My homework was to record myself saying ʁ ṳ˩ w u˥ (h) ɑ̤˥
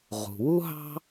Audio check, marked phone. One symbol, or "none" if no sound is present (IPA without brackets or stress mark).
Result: ɦ